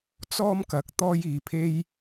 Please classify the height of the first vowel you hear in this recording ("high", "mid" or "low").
mid